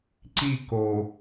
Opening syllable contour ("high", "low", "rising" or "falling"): falling